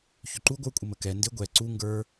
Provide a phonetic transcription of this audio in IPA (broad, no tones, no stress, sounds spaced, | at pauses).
ç ʏ ǃ u ɡʷ ə˞ kʷʼ ɪ m ə k ɛ n d ɪ ɡʷ ɛ ǀ u ŋ ɡ ə˞